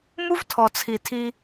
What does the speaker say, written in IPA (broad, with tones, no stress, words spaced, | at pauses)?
mu˦vtʰɔ˨t͡sʰi˨tʰi˧